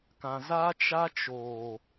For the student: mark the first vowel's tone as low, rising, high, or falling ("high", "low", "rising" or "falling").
low